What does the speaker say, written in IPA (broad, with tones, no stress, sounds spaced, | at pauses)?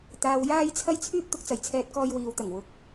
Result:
t̪ aː˨ w j aː˧ j t͡sʰ ɐ˧ j t͡sʰ yː˥ p̚ t̪ ʊ˨˥ k̚ t͡s ɐ˨˩ j t͡sʰ ɛː˧ t̚ k ɔː˧ j w iː˨ w t̪ ɐ˨˩ ŋ w ʊ˨˥ k̚